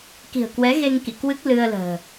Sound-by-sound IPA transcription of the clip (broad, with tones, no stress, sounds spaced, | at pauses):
k i̤˨˩ ə̯ k w ɛ˨˦ ɣ e˧ ŋ k ḭ˧˨ k w ɨ˦˥ k̚ l ɨ˧ ə̯ l ə̤ː˨˩